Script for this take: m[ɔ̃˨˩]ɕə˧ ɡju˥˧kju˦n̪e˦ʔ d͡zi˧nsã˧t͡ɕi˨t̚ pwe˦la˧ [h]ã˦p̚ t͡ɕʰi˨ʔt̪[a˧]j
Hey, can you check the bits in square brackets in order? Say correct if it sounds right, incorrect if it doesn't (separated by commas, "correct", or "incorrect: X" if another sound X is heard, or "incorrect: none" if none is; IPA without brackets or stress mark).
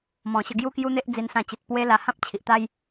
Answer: correct, correct, incorrect: a˦